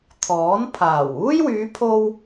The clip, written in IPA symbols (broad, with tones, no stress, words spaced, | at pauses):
t̪ʰɔː˨˥npʰaː˨˩w uː˥jwyː˨˧pʰo˧w